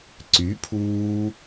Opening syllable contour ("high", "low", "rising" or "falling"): rising